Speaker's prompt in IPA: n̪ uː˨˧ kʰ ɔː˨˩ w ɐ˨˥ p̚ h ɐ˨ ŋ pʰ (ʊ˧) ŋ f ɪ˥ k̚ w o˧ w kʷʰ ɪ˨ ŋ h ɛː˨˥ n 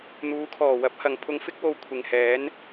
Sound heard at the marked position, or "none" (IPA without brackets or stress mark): ʊ˧